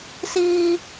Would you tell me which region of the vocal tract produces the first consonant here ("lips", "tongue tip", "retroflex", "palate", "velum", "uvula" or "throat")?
tongue tip